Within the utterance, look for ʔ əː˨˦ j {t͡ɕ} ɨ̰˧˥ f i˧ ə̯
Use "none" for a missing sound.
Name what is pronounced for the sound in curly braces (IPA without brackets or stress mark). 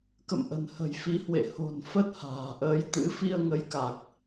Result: t̪